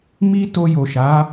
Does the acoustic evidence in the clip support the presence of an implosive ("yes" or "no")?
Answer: no